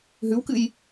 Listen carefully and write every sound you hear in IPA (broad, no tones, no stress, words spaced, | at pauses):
ɦʉwkɨj